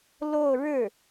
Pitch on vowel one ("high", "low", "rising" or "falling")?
falling